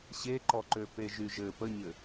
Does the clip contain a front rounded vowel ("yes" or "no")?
yes